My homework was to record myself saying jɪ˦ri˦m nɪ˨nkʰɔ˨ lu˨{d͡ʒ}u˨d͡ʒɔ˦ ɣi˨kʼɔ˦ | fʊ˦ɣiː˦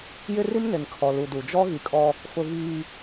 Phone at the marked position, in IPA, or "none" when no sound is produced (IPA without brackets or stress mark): d